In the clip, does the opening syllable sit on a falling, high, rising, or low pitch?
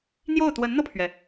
falling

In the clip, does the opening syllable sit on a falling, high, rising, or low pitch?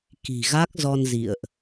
low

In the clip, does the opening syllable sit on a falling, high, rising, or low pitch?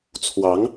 rising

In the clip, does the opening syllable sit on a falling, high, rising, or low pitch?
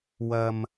low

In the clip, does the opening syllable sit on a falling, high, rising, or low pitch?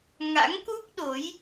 rising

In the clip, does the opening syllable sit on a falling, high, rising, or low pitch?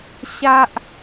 high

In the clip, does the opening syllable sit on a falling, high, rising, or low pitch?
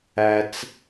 low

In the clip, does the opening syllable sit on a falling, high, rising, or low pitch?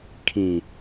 low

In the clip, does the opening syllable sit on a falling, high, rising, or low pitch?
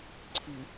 low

